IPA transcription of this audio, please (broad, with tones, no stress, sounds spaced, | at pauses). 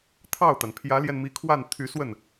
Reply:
t̪ʰ ɑ˥˩ ʊ̯ t̪ a˩ n pʰ j ä˧˥ l j ɛ˧ n m i˧˥ kʰ w a˥˩ n t̪ʰ y˧˥ s w ə˥˩ n